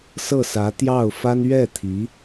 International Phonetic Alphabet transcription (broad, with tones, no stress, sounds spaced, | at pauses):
s ɤ˥˩ s ä˧˥ t̪ j ɑ˥˩ ʊ̯ f a˥ n ɥ ɛ˥˩ t̪ʰ i˧˥